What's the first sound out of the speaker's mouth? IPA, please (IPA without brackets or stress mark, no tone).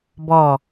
b